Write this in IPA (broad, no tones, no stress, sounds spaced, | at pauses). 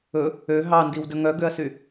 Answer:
ɵ | ø ɦ ɑ n d i w d ɵ ŋ œ ɡ ø ɐ̯ s y